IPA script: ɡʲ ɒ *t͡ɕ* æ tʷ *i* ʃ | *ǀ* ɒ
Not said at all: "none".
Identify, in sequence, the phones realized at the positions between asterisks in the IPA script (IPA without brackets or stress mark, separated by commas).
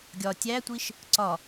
tʲ, i, ǀ